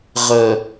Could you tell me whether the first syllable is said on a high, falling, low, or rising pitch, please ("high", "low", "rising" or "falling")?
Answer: low